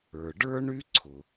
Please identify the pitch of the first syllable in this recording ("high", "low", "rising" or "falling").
low